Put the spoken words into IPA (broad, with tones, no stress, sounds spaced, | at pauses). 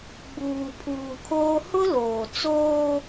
ɡ͡b uː˨ pʰ uː˨ kʰ oː˦ h ʊ˦ l oː˨ t͡s oː˦